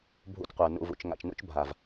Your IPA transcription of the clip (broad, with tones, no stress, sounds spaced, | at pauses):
bʱ ṵ˧ t qʷ ə˞˨ n ṵ˨ v ṵ˨ t͡ʃ ŋ a̰˨ t͡ʃ n ṵ˧ t͡ʃ bʱ a˨ v